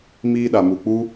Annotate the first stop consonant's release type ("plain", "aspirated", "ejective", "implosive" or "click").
implosive